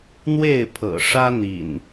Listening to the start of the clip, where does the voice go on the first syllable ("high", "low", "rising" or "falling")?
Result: falling